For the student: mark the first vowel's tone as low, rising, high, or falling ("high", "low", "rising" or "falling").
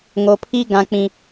low